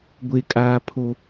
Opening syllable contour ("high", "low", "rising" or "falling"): high